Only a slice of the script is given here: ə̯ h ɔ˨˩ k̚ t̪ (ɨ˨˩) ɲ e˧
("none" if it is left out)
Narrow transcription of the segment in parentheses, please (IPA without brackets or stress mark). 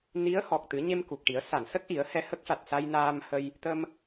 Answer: ɨ˨˩˦